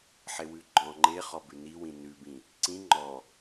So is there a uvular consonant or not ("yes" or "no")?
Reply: yes